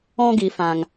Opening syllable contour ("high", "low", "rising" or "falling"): high